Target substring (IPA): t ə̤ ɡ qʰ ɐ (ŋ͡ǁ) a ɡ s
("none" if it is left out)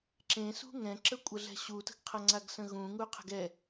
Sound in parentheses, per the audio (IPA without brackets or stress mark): ŋ͡ǀ